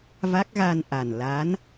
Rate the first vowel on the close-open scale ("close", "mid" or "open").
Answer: open